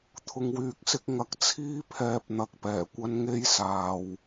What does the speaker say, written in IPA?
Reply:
t̪ʰʊ˨ŋwyː˨˥k̚sɪ˨˥k̚ ŋɐ˨˥k̚ t͡sʰiː˥pʰɛː˧p̚ n̪ɐ˧k̚pɛː˨˩kʷɐ˥n ŋe˥jsaː˨w

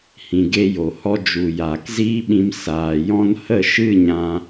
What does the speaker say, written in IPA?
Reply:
hĩ˨ɡe˧ jo˨hɔ˦ d͡ʒu˨jaː˨kziː˦ɓĩ˧m saː˨jɔ̃˦n hə˦˨ ʃɨ˦˨ɲã˧

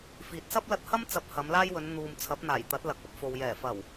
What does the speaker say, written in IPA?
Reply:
fiː˨t̚sɐ˥p̚lɐ˧t̚hɐ˥m t͡sɐ˧p̚hɐ˨˧mlaː˥jwɵ˨˧n n̪uː˨m t͡sʰɐ˨˥p̚n̪aː˨˩jt̪ɐ˨˥t̚ lɐ˨˥k̚ɐ˨˥p̚fo˨w jɛː˨˩fɐ˨˩w

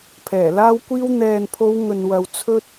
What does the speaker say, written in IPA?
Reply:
pʰɛː˨˩laː˥wkʷiː˥w n̪ɛː˨npʰo˨˧w ŋɵ˨nwɐ˨w t͡sʰɵ˥t̚

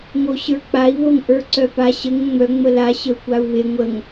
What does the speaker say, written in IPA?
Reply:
ŋoɕə˞k͡pai̯ βoŋʔə˞ǀœpa ɕəŋ ŋ͡mœ ŋ͡məla ɕəu̯kʷau̯βe ŋʷəŋ

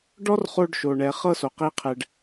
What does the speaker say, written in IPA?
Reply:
ɖɔ˦r χo˧ɖʃo˨ɳɛ˨ χɤ˦so˨ qi˦qʰɛ˧ɖ

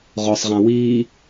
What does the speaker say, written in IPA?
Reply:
ʁɔsˤʁã wiː

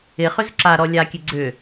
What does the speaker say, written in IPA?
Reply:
ɪ χʏzǁaɾɔ lʲakʲe ɡ͡ǀʏ

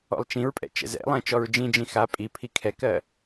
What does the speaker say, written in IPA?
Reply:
ɔ̰lˠt͡ʃĩɹpʼɛ̰ t͡ʃɛ̰zɛ̰lˠɛ̃ t͡ʃɔɹd͡ʒĩd͡ʒĩ xa pʼipʰi kʰɛkɜ

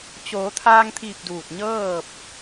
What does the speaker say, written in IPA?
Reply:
t͡ɕoː˩˧t̪ʰaː˧ŋt̪ʰi˧˩p̚ duː˧˩t̚ɲɤː˥˨p̚

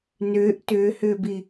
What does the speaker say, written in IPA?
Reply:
nʏːʔ tʏːhʏːbi

